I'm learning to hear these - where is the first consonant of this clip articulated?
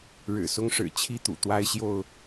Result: retroflex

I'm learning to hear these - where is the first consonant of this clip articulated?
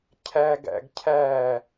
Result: palate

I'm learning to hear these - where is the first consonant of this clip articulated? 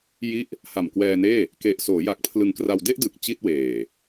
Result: palate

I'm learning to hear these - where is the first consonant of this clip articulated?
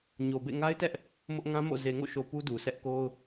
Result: palate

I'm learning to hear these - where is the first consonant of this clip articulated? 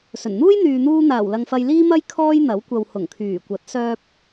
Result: tongue tip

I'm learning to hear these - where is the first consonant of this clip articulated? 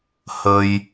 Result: throat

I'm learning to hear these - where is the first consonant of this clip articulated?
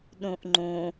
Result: tongue tip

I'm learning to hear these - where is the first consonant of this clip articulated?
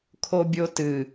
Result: velum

